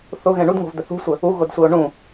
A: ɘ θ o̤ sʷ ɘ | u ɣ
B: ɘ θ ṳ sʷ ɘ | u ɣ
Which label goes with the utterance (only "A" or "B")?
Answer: B